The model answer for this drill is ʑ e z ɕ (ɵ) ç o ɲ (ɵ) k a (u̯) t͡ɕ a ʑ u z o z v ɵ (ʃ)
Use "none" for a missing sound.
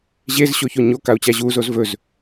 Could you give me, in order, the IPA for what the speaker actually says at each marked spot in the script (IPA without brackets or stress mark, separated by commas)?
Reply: o, o, u̯, z